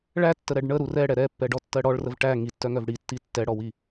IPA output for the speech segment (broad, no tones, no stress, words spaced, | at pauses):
ɭætːəɾɛɖ ɳəɾu rɛɽɛ ɾɛpːɛɖɔtːɜ ɽɔɭrəv ʈæ ŋitːœŋœv ɽitːi tːɛɽɔwi